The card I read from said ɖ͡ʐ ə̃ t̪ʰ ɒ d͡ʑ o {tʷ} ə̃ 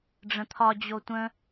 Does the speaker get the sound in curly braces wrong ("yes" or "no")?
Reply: no